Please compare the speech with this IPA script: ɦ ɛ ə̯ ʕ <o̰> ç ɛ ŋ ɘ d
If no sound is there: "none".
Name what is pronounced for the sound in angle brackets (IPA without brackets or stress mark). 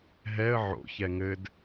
o̰